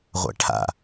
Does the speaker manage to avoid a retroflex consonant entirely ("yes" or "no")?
no